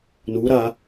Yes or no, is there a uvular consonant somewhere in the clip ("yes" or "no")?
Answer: no